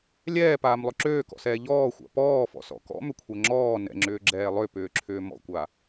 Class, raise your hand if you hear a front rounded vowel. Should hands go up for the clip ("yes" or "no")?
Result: yes